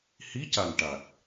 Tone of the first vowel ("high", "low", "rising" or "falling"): rising